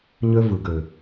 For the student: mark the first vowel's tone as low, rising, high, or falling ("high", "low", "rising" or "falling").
high